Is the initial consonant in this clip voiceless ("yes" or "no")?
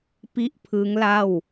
yes